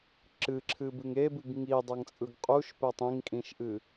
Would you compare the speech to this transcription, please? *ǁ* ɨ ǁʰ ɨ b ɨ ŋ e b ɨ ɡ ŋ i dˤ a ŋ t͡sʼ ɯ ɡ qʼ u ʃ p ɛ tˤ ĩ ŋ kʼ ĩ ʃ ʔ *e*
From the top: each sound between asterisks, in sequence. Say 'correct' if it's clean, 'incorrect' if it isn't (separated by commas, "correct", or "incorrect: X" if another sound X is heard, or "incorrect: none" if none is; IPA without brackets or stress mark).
correct, incorrect: ɨ